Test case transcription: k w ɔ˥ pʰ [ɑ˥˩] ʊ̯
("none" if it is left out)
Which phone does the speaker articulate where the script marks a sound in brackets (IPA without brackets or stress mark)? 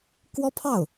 ɑ˥˩